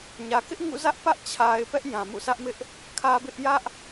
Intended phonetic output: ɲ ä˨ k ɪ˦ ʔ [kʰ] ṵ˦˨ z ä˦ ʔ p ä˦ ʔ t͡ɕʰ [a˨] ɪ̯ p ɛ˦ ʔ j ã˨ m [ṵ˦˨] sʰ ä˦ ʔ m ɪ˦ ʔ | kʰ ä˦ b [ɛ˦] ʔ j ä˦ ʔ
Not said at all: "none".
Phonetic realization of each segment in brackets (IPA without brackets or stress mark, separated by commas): ŋ, a˨, ṵ˦˨, ɪ˦